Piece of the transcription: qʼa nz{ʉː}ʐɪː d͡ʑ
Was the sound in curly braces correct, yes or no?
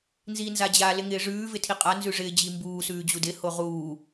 no